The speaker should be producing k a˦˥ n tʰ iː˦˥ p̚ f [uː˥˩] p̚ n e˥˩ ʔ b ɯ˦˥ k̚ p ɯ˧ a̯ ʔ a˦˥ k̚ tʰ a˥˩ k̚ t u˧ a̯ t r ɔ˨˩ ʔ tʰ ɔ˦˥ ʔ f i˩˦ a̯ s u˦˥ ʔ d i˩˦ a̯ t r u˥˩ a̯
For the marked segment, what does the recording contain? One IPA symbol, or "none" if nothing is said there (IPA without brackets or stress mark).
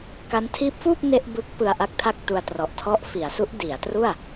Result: uː˥˩